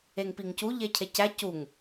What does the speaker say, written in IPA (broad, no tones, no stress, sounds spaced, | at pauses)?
e ŋ p i ŋ c u ʎ e cʰ e c æ c u ŋ